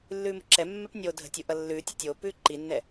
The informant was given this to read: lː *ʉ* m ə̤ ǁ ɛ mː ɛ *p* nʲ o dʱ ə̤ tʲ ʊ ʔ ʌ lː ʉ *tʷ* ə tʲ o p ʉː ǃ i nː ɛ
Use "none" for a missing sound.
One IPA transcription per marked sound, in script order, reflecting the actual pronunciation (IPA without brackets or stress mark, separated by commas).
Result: ʉː, p, tʲ